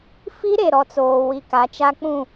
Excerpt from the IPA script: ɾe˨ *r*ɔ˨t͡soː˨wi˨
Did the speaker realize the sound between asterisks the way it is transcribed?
no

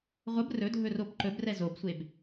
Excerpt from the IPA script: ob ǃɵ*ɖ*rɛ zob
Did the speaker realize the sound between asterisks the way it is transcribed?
no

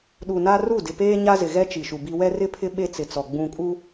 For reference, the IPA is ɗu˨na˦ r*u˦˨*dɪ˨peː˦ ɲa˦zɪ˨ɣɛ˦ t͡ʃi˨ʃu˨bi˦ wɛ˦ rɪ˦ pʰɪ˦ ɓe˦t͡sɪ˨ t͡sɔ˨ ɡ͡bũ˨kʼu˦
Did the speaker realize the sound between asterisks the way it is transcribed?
yes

